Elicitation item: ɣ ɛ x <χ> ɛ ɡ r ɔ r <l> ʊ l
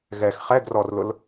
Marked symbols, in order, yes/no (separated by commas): yes, yes